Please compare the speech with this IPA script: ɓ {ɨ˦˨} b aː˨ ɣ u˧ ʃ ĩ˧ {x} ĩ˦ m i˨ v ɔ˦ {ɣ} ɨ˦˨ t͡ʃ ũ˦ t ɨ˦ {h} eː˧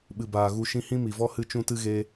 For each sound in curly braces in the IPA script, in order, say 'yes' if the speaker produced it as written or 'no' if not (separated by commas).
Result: no, no, no, no